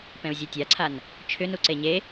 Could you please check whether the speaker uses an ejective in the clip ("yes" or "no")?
no